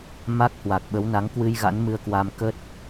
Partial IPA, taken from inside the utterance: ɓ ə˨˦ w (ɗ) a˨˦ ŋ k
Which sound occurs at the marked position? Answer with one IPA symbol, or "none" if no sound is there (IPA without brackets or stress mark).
n